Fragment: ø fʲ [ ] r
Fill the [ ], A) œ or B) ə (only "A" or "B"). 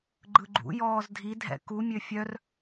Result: A